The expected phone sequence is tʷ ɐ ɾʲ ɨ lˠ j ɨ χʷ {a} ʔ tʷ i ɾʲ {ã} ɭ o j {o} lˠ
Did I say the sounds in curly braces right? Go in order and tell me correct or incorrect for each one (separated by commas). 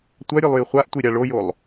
correct, incorrect, correct